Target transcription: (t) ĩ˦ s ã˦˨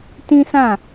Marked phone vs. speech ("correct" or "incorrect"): correct